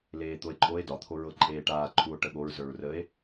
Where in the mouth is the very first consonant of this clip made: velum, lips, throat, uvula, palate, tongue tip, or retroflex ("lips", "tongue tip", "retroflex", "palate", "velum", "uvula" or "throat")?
tongue tip